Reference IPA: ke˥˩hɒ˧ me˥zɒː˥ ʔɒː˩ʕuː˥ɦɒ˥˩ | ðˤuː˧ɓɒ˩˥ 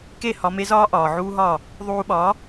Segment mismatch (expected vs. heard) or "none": none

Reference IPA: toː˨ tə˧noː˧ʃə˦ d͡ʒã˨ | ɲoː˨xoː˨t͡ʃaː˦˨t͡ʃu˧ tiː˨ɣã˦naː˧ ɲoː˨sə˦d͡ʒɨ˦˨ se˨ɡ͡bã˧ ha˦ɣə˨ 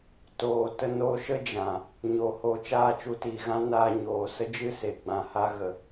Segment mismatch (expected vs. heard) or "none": x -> h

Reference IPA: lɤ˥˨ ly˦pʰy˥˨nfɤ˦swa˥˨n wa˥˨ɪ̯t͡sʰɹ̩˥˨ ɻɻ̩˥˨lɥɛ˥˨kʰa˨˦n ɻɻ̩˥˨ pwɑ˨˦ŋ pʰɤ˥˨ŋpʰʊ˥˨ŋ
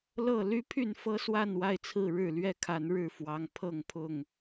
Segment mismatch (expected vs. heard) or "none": p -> f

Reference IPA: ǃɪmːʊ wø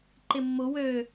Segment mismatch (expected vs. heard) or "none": none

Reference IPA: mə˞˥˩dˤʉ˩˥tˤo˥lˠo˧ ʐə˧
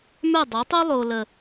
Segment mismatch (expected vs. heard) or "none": ʐ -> l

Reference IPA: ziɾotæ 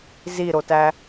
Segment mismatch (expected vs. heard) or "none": none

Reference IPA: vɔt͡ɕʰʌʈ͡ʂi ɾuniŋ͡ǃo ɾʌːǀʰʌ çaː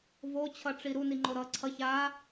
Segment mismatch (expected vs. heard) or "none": ɔ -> o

